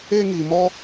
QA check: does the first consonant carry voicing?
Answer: yes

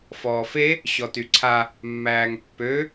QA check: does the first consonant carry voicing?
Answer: no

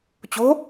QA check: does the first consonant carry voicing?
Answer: no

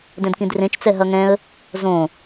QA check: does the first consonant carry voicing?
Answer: yes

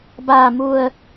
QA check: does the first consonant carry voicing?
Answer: yes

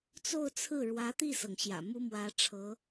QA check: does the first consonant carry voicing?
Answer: no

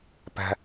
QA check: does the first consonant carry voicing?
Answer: no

